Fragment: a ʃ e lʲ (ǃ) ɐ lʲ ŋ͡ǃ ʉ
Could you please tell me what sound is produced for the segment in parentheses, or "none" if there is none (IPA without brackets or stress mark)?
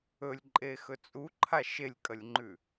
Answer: kʼ